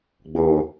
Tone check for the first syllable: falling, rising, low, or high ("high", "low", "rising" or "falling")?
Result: low